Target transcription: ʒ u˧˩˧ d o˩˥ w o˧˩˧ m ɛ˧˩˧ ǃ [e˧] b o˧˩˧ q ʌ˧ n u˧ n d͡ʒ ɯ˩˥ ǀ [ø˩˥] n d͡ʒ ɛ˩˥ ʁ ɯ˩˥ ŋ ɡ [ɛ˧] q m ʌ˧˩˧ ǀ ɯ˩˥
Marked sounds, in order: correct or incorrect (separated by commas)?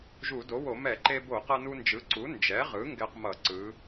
correct, incorrect, correct